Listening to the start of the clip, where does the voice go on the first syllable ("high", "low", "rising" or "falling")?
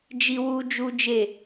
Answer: high